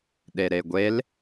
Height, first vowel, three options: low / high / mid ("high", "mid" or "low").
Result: mid